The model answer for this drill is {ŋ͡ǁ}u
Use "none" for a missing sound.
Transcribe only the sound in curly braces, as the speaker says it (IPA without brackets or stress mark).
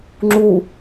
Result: ŋ͡ǁ